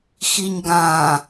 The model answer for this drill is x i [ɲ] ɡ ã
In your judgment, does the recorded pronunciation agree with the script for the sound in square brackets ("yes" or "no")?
yes